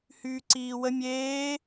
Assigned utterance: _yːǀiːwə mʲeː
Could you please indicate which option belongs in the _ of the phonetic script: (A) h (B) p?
A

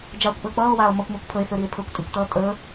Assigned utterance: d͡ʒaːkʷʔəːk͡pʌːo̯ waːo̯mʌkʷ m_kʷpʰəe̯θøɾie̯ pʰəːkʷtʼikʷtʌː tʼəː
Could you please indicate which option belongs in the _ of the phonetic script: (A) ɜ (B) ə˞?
B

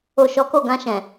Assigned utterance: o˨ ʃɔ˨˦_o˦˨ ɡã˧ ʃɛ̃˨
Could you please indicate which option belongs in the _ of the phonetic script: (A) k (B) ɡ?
A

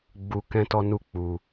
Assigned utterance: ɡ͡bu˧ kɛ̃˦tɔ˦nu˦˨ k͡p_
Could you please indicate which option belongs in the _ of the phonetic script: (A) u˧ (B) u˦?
A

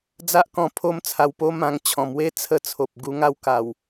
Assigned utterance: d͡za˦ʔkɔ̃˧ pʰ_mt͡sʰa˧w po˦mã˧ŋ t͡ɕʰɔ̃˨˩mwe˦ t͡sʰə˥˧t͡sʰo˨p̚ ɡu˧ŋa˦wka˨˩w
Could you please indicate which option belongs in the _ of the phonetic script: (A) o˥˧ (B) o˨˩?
A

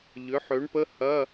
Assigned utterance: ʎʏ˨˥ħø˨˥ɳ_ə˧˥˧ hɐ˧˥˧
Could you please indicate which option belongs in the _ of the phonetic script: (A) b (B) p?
B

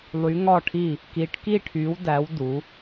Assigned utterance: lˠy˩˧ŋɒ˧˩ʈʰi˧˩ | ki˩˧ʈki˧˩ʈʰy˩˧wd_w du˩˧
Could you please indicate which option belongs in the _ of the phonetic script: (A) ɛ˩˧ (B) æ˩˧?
B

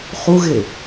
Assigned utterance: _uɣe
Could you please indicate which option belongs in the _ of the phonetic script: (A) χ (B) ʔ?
A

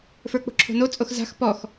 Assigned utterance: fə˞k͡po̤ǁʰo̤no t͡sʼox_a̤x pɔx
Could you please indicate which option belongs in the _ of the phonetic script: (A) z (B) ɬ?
A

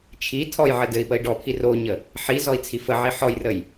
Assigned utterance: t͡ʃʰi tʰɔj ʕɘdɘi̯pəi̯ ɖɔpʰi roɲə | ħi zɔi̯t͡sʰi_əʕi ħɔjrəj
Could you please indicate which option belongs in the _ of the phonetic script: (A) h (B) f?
B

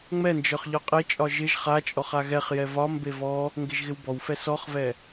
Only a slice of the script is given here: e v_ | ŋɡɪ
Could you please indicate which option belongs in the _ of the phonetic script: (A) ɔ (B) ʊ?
A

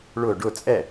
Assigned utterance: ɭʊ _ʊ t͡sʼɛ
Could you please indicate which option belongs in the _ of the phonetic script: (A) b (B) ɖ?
B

